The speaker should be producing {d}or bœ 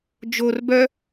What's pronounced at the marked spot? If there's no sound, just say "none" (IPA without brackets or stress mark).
d͡ʒ